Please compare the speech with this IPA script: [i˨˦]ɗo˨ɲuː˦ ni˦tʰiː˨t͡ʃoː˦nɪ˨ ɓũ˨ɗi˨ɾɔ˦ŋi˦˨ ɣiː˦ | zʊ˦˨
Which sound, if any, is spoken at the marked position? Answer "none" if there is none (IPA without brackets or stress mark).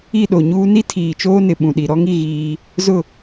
i˦˨